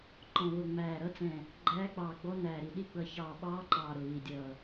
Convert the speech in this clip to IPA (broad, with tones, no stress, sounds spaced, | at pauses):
ǃ ɔ̃˧˩ β ʊ˧˩ ŋ͡m æː˧˩ ɾ ʌ˧˥ t͡s ɛ̃˧˩ | ɡ͡ǃ æː˧˥ k͡p ɑː˧˩ ɡ͡b ɔ˧˥ n æː˧˩ ɾ i˧˩ ɗ i˧˥ ɡ͡b ʌ˧˩ ç ɑː˧˩ ɓ ɑː˧˥ ǃ ɑː˧˩ ɾ ʊ˧˩ β i˧˩ dʲ ʌː˧˩